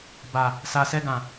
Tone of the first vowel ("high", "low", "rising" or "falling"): low